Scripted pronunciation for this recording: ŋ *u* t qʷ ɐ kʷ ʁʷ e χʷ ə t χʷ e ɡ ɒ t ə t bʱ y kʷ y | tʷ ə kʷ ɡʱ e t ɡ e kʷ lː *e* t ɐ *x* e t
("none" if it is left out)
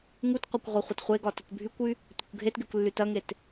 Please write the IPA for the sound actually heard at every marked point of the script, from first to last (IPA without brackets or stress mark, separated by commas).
u, y, ŋ